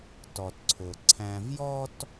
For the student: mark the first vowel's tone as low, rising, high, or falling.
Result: low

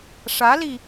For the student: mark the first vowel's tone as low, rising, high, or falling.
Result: rising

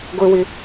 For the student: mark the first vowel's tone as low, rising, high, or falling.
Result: low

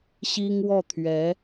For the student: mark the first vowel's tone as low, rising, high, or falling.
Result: high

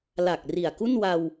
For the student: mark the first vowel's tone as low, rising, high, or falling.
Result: low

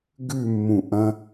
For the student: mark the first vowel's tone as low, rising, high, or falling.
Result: falling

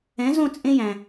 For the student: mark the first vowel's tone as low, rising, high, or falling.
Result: rising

